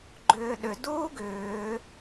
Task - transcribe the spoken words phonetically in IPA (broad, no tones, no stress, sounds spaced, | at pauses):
ɡ͡ǃ ʏː ɗ ʏ d uː ɡ ʏː